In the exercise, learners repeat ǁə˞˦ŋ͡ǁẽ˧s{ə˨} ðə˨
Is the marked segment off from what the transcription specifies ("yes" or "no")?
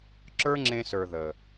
yes